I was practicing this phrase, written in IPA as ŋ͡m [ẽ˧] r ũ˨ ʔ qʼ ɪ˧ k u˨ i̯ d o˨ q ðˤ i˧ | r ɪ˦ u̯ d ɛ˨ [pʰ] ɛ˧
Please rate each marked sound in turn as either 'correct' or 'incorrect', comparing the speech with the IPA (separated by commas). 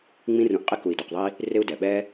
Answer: incorrect, incorrect